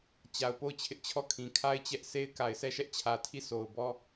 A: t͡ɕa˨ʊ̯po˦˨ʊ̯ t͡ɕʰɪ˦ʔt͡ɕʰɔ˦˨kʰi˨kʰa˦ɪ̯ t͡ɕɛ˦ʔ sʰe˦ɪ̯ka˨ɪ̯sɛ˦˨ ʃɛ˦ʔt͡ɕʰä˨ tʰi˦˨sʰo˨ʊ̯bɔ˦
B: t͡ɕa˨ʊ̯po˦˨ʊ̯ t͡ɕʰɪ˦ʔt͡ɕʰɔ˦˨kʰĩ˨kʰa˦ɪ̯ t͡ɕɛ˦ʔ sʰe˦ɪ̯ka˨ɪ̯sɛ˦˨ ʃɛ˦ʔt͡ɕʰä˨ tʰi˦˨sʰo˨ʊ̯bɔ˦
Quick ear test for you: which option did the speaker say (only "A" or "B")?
B